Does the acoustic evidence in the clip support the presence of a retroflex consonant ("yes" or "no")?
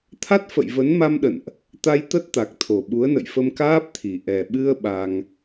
no